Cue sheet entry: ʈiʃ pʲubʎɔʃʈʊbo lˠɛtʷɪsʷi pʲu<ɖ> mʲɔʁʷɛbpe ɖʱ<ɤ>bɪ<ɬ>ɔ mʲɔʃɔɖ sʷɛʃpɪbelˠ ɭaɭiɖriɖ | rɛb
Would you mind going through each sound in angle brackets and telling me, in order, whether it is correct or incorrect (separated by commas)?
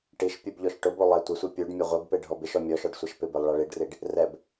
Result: correct, incorrect, incorrect